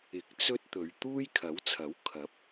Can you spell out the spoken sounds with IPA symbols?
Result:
ɪ˨˥k̚ t͡sɵ˥t̚t̪ɵ˨˧ɥ t̪uː˥jkʰɐ˨˥wt͡sʰɐ˨˥w kʰɐ˨˥p̚

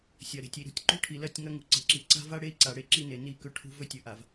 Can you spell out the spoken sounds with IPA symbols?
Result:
sʲɐ˨ɾe̤˨tʲi˨ɾṳ˦tʲ ǃṳ˦ʈʰi˨lɐ˦˨tʲŋɐ˦ ŋṳ˨ǀe̤˨ǁi˨ ǀa̤˦va˦ɽe˦i̯ǀa˨ ɽe˦ǁi˦ne˨ ni˦˨ kɵ˦ʈʰṳ˦ vɵ˦tʲɵ˨ʔa˨v

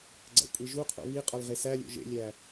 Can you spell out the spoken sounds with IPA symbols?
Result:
ɡ͡ǀæ̰kʷʼiʒuqʰo̰ βiqʼɒl ʁesælʲo̰ ʒḛlʲæ

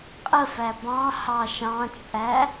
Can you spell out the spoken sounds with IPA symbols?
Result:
qʼəfæ bɑ̃ hɑʃɑ̃t͡ʃʼæ

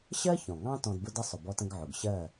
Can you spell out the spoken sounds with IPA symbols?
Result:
ɕɜ˦ çɔ̃˨ŋɑ̃˦ tɔ̃˧dbʊ˦də˦ sˤʊ˨bɔ˧tə̃˧ɡ ʕʊ˨ɡɕɜ˦˨

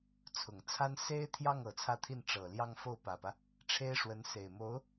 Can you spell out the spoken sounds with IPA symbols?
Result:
t͡sʰʊ˨˩ŋt͡sʰa˥n se˥ɪ̯t̪ʰjɑ˥˩ŋ ɤ˨˩t͡sʰä˥˧t̪ʰi˥˩n ʈ͡ʂɤ˨˩ljɑ˥˧ŋ fo˥˩ʊ̯pä˨˩pä˦ | ʈ͡ʂʰe˥ɪ̯ʂwə˧˥nse˨˩ɪ̯mo˧˥ʊ̯

